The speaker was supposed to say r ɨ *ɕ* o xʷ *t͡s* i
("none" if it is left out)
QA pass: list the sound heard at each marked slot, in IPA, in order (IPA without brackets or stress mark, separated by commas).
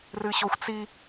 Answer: ɕ, t͡s